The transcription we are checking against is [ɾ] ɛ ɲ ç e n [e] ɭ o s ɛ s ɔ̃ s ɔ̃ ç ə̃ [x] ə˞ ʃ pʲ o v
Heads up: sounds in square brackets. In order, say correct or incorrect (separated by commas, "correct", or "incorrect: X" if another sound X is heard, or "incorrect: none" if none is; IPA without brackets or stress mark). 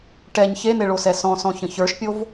incorrect: ʈ, correct, incorrect: ç